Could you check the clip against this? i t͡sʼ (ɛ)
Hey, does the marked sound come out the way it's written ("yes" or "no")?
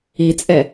yes